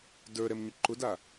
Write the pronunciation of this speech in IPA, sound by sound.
d ə˞ ɾ ɛ m ɲ ʊ ǃ ʊ d a

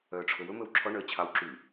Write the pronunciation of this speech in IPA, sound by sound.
œː ʈ͡ʂʰ ɵ w ɵ m ɵ w ǁʰ ɔ ɳ œ ə̯ t͡ɕʰ ɑː w ǁ y

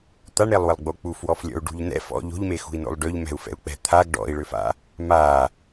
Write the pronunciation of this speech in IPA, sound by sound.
t̪ a ɳ ɾ e lˠ w ə lˠ ɡ͡b o k͡p u f w ɔ f lʲ ɔ̰ u̯ ɖ ṳ ʎ n ɛ̰ f ɔ̰ ʎ o̤ ʎ m e x ṳ i̯ n o̰ lˠ ɖ ø ʎ m ɛ̤ u̯ f ɛ̰ u̯ k͡p ɛ̤ t̪ʰ a ɡ ɖ ɔ̰ i̯ ɭ ø f a̰ | m a

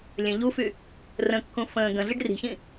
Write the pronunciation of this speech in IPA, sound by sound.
lʲ ə̃ ʎ u f y | r ə̃ kː ũ f ə̃ː ɡ ə̃ ɮ i ɖ r i̤ ç ĩ

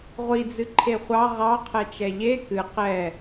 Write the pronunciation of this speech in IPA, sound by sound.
ʁʷ i d͡z ɨ ǃʰ e χʷ ɑ ʁ ɑ qʰ ɛ t͡ʃ ɛ ʎ e k ɨ q ɛ

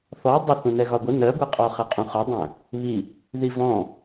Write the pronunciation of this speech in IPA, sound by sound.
θ ɔ dˤ ʊ θ ũ n ɛ ɣ ɒ ɡʷ ə n ɜ ɡʷ ɜ qʼ ɔ χ ʌ qʼ ũ χ ʊ dˤ æ̃ | β i | ð i v ɔ̃

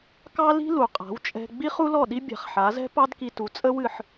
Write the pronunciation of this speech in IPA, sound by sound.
k ɑ˥ l i̤˥ l u˩ qʼ a̤˩˥ w t͡ʃʼ ɛ̤˧ ɡ͡b i˥ χ u˥ l ɔ˥˩ ɗ i˥ bʲ a̤˩˥ χ ħ a˩˥ z ɛ̤˥ p ɑ˥ d k i˧ t u˩˥ t͡sʼ ə˥ w ɨ˥˩ ħ

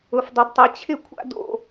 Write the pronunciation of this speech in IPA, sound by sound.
ʊ˥ f dˤ ʊ˥ d tˤ ɛ˥ t͡ɕʰ ɪ˥ kʷʰ a̰˥ d o̰˥

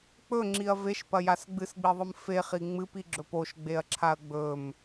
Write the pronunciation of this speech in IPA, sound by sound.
k͡p ɵ ŋ͡ǁ i ɐ̯ v e ʃ p ɐ j a s ɡ͡b ɨ s ɡ͡b i ðˤ ɨ m f e χ i ŋ͡m ɨ p i ɡ͡ǁ ɵ p o ʃ ɡ͡b e ɐ̯ ǁʰ a ɐ̯ ɡ͡b ɵ m

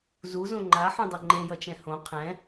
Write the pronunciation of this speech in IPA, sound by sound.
z u z õ ŋ͡ǃ a ħ ũ dˤ o ŋ͡ǃ ẽ j ʌ t͡ʃ ɛ̃ h õ qʰ ɛ̃

